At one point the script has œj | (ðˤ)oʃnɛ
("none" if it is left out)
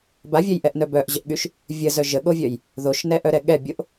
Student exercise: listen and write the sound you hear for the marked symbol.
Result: ð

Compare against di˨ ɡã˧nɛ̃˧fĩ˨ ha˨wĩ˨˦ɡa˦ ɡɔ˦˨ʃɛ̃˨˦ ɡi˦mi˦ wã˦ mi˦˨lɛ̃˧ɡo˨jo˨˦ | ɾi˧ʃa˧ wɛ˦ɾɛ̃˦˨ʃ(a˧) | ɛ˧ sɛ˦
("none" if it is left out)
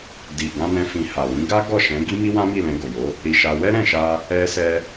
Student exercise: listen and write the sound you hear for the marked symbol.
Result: a˧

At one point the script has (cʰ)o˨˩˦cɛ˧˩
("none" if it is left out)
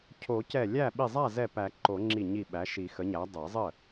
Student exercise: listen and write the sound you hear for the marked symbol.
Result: cʰ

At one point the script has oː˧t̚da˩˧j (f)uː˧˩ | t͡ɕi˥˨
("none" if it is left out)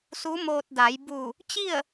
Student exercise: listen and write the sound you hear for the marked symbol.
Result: b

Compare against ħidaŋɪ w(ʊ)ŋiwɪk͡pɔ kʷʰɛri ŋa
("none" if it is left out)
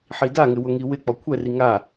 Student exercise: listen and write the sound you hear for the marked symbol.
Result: ʊ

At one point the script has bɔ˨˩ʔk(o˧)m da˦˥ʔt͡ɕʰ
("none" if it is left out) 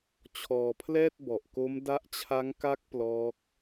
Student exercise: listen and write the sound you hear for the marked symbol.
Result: o˦˥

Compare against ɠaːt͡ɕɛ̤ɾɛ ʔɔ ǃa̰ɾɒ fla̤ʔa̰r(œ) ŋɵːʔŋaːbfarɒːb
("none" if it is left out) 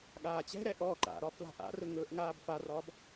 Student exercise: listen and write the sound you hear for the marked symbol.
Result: ɵ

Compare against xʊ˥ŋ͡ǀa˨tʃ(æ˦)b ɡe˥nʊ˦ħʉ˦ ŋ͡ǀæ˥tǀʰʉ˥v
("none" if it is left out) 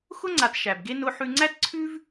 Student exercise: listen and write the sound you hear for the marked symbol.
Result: æ˩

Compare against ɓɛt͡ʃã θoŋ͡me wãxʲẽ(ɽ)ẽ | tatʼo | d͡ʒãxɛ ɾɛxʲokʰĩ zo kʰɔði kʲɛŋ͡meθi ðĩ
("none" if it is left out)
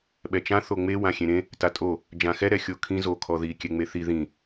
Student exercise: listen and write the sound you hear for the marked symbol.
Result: ɾ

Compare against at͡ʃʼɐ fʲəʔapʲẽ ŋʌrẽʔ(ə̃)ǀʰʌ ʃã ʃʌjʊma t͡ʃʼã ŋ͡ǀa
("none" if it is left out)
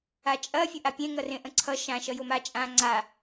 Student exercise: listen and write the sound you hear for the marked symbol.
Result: ə̃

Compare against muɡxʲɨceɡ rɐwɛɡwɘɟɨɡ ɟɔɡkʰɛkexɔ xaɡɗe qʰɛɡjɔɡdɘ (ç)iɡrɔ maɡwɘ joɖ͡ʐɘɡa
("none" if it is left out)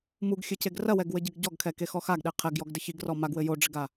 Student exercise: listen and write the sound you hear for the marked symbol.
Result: ç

